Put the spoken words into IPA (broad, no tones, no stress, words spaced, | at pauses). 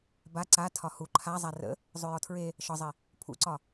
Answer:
ba ǀa tʰɒhu ǃʰazˤa rə̰ | zˤʉjɔtʰɹe | ʃɒzˤi | pʰṵǀɒ